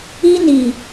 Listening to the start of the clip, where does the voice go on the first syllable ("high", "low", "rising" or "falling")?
high